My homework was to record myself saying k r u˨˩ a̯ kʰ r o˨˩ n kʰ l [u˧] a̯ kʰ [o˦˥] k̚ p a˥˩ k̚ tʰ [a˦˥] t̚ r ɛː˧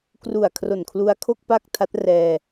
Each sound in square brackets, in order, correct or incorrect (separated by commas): correct, incorrect, correct